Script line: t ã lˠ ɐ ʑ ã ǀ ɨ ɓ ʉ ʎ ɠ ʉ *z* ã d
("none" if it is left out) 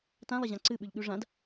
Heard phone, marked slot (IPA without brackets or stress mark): ʐ